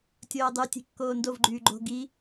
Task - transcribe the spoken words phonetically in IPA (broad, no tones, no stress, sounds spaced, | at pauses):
tʲ oː dˤ y tʲ e̤ kː oː n d o v ɡ͡ǃ yː ɡ͡ǃ o̤ ɡ i